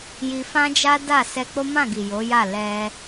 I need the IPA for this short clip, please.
j i˧ f ã˦ d͡ʒ a˦ d a˦˨ s ɛ˧ k͡p o˦ m ã˦˨ ɡ i˨ j o˨˦ j a˦˨ l ɛ˧

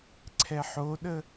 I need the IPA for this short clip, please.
ǀʰ ɛ ħ o ɗ ə

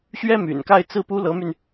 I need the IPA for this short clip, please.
ɕ ɥ ɛ˥ m y̰˨˩ n k a˥˧ ɪ̯ t͡s ɹ̩˥˩ p u˥ l ɤ˧˥ m y˧ n

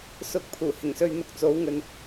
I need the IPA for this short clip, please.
s ʊ˨˥ k̚ pʰ uː˨˩ h ɪ˨˩ ŋ s ɵ˧ ɥ n̪ ʊ˧ k̚ t͡s o˨˥ w ŋ ɵ˨ n

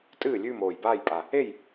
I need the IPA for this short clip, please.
tʼ ɨː˥˨ lʲ ʉː˥˨ m oː˨˩ j b aː˥˨ j pʼ a˨˩ | e˥˨ j

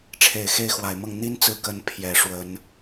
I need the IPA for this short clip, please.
ʈ͡ʂʰ e˨˩ ɪ̯ x e˥˩ ɪ̯ x w a˨˩ ɪ̯ m ɤ˥˩ ŋ n̪ i˥ n t͡s ɹ̩˥˩ k ə˥ n pʰ j ɛ˨˩ ʂ w ə˧˥ n

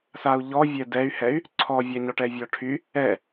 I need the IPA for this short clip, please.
s a u̯ ʎ ɔ vʲ ɛ d ɛ y̯ h ɛ y̯ | ǀʰ ɔ vʲ a ɲ ɔ ʈ ɛ vʲ ɔ ʈʰ y | ɛ

